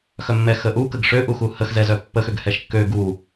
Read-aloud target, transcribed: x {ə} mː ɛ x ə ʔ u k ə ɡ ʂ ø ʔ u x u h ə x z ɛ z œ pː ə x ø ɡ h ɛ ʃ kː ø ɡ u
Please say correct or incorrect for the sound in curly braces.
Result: incorrect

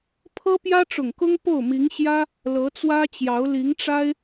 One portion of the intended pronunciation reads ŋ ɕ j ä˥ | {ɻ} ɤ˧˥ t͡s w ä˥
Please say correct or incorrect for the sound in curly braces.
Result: incorrect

